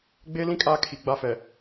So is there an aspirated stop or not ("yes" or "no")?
yes